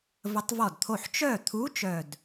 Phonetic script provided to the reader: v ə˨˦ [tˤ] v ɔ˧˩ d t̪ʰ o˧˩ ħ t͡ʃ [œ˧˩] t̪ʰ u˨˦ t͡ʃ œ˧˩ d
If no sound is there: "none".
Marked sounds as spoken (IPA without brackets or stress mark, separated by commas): tˤ, œ˧˩